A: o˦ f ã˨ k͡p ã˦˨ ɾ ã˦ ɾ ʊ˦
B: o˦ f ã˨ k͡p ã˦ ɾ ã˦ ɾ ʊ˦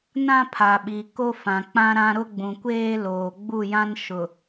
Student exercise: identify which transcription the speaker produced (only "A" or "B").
B